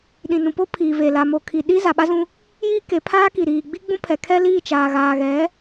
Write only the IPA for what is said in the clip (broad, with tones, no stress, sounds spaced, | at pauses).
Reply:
ɗ ĩ˨ n ũ˨ p o˦ pʰ iː˨ v e˨ l aː˨ m o˨ kʰ i˨ ɗ i˦ z a˨ ɓ a˦ z ũ˦ | j iː˦ k e˨˦ pʰ aː˦ k i˨ ɾ iː˨ ɡ͡b i˦ ɡ͡b ũ˦ pʰ ɛ˨ kʰ ɛ˦ l iː˦˨ t͡ʃ aː˨ ɣ aː˨ ɣ ɛ˨˦